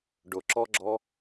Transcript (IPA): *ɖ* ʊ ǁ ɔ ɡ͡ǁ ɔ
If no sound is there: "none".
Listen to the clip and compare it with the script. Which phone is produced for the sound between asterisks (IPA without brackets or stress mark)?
ɖ